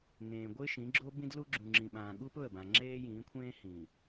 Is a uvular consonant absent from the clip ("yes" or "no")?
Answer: yes